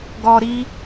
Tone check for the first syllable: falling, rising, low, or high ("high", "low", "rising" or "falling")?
high